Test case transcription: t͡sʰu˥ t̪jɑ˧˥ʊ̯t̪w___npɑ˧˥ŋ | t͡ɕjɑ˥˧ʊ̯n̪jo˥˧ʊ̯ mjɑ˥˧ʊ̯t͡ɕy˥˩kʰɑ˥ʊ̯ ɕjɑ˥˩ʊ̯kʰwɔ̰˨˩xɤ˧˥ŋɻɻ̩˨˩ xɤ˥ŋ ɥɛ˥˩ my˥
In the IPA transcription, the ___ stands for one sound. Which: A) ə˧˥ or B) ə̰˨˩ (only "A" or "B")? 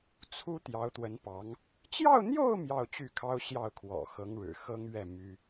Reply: A